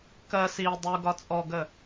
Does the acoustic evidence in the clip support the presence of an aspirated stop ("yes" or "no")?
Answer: no